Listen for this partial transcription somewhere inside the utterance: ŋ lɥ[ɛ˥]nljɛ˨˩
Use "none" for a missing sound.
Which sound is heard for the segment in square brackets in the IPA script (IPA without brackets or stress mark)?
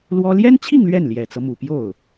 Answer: ɛ˥˩